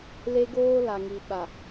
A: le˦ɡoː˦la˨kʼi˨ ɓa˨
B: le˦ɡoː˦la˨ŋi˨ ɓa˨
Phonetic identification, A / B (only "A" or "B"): B